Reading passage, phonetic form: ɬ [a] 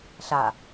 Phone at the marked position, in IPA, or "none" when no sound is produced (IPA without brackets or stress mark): a